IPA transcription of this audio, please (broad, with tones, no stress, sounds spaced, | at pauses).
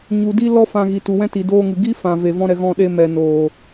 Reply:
ɲ u˨ d i˧ l ɔ˦ f ã˧ ɣ i˨ t u˨ w ɛ̃˦ t i˨ d oː˧ ŋ ɨ˨ ɡ i˦ f ã˨ v e˨ v ɔ̃˦ ɾ ɛ˨ ɣ ɔ̃˧ ɗ e˧ m ɛ˨ n oː˨